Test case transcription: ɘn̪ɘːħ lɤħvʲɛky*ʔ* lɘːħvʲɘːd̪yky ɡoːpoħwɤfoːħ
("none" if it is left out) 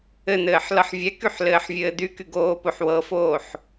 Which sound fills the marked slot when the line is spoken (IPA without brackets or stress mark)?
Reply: ħ